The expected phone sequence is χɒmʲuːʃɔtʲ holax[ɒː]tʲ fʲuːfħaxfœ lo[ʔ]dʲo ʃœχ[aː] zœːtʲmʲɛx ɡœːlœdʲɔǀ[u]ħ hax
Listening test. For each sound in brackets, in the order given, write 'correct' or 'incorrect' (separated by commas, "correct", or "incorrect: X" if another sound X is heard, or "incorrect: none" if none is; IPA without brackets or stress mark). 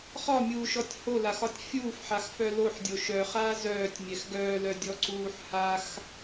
incorrect: ɒ, incorrect: ħ, correct, incorrect: uː